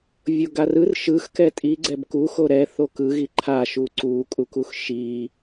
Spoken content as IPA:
vʲ o ɡ a r ɯ r ʃ ɯ x k ɛ tʼ i ɡ͡ǀ ɛ b k u x o ɾ ɛ θ o k ɯ ɣ i ǃʰ a ʃ u ǀ u kʼ u k u x ʃ i

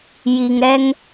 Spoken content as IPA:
j i˨ ŋ ɾ ɛ˧ ŋ

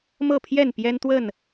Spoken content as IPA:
m ɤ˥˨ pʰ j ɛ˥˨ n p j ɛ˦ n t̪ w ə˥˨ n

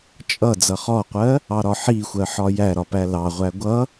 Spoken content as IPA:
t͡ʃʼ ʌ d͡z ʌ χ ɔ qʷ ɜ | ɑ ɾ ɒ ħ i xʷ ɜ ħ ɒ j æ ɾ ɒ p æ l ɑ ʁʷ æ ɡʷ ʌ

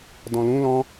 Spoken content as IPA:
d ɔ̃ l ũ l ɔ̃

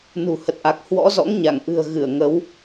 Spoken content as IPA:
n ṳ˨˩ h ə˨˩ t̚ ʔ a˨˩ k̚ h w ɔ̰˧˥ z ɔ̰˧˥ ŋ ɲ a˧˩ ŋ ʔ ɨ̤˨˩ ə̯ ɣ ɨ˧˩ ə̯ ŋ ə˨˦ w

